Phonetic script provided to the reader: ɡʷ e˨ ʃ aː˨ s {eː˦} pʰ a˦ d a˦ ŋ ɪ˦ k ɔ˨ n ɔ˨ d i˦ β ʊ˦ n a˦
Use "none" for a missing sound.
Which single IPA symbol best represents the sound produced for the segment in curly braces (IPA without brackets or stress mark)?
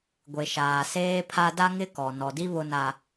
eː˦